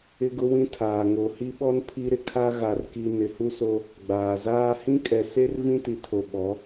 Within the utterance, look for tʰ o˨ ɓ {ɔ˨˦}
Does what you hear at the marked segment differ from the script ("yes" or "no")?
no